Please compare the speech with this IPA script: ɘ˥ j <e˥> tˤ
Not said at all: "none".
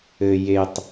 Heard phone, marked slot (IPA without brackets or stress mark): e˥